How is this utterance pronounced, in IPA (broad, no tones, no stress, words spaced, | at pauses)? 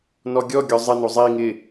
nɔɡʲɔɡʲɔ zˤɪno zˤi ŋɪ